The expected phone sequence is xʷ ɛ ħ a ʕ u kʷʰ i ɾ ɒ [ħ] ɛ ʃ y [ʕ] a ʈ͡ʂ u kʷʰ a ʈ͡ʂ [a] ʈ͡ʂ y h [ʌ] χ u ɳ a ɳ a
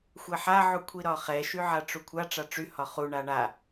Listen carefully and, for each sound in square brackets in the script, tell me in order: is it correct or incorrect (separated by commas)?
incorrect, correct, correct, incorrect